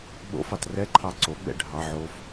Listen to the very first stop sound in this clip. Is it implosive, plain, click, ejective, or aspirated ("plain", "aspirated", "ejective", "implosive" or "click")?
implosive